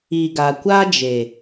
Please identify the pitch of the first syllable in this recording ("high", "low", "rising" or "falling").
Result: low